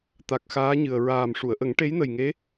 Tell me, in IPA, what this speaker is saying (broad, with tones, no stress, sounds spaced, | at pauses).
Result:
t̪ a˨˩ k̚ x aː˧˥ ɲ ɨ˨˩ ə̯ ɹ aː˨˩ m ʂ u˨˩˨ ə̯ ʔ ə˨˩˦ ŋ ʈ e˧˥ j n ə˨˩ j ŋ e˧˥